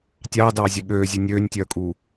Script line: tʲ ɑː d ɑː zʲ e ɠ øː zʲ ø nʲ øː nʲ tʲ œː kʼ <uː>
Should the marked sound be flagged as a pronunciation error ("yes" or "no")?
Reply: no